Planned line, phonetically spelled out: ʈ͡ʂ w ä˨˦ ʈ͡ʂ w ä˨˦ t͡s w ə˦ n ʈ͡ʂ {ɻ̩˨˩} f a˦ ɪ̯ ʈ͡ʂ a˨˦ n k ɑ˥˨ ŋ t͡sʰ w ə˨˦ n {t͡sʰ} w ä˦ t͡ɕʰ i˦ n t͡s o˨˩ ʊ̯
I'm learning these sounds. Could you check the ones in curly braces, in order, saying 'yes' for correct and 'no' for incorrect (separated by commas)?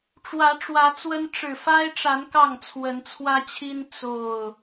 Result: yes, yes